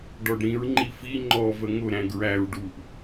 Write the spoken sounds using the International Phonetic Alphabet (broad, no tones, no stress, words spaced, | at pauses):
ɖɔɖɾĩɹ ŋ͡ǃifi ŋ͡ǃɔ vəŋʊ ɾæ̃ɡɹæɹ ɖuʔ